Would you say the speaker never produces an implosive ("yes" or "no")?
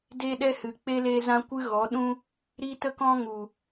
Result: no